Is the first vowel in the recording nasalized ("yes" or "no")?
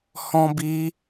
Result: yes